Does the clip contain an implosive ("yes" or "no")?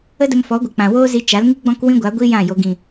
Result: no